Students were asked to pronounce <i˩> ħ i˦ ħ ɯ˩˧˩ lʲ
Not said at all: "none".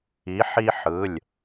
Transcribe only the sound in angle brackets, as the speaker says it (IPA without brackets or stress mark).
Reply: i˨˥